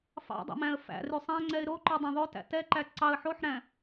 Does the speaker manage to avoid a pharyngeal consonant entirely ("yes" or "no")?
no